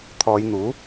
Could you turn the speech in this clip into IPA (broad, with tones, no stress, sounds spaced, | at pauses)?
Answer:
t̪ʰ ɔː˨˧ j n̪ uː˨˥